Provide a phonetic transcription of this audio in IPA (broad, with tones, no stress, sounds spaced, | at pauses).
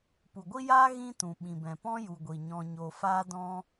p u˨ ɡʷ i˦ j aː˦ ɣ ĩ˦ t ũ˨ ɓ ĩ˨ b ɛ̃˨ p ɔ̃˦ j u˨ ɡʷ i˨ ɲ ɔ̃˧ ɲ o˧ f a˦ d ɔ̃˦